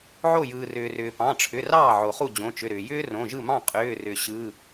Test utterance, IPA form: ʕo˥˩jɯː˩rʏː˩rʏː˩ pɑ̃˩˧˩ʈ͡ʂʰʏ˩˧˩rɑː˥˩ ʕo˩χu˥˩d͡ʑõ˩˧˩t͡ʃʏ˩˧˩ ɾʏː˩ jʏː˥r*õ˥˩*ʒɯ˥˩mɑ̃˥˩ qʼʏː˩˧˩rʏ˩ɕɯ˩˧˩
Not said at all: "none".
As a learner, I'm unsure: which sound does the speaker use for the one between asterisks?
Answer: õ˩˧˩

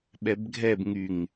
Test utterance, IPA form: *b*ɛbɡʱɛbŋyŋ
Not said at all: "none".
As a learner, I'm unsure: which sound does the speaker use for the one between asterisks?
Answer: ɓ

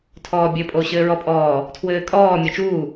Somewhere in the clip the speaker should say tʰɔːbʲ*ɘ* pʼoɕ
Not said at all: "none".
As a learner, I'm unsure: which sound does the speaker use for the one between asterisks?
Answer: ɘ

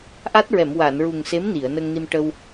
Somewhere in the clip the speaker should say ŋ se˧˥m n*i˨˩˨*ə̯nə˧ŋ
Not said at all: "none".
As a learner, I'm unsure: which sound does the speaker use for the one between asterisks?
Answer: i˨˩˨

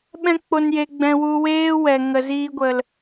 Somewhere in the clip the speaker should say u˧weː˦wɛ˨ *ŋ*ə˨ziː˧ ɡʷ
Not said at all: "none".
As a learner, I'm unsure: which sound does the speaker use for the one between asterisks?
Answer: ŋ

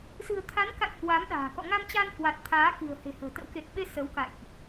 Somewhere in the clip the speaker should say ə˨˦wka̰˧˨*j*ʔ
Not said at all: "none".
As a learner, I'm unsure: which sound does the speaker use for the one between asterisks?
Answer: j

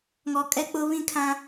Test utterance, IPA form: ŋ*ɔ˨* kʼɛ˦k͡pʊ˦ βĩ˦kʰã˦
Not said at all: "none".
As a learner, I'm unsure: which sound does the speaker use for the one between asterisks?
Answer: ɔ˨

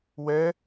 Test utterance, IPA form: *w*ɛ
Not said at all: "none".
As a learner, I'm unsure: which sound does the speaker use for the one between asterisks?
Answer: w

